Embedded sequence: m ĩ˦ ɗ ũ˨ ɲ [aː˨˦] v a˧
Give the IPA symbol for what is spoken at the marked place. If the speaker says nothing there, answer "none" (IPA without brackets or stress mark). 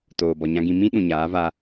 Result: aː˨˦